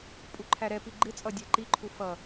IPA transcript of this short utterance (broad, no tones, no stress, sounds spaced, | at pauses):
pʼ u ǃʰ æ ɾ ɛ p i ɡ͡ǃ ɪ t͡sʼ ʌ dʲ æ ǃ i ǃʰ u f ʌ